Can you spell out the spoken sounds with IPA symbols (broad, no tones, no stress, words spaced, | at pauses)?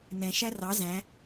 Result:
nɛ̃ ʃærɑ zæ̃